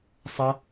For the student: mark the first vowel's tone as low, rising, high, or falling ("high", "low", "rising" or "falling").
high